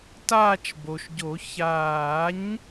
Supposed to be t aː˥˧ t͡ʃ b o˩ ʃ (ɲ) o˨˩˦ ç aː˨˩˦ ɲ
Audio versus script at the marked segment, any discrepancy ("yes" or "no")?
yes